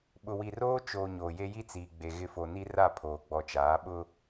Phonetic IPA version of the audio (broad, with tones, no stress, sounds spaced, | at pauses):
ɓ ʊ˨ w i˨ r oː˦ t͡ʃ oː˨ ɲ oː˨ j e˦ j i˦ t͡s iː˨ ɡ͡b e˨ ɣ ɪ˦˨ f o˨ n i˦ r a˦˨ pʰ oː˨ ɡ͡b ɔ˨ t͡ʃ aː˨˦ ɓ ʊ˦